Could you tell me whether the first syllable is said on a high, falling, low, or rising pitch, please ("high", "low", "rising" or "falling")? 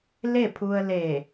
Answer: falling